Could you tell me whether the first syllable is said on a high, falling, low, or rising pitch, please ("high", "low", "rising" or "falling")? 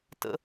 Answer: high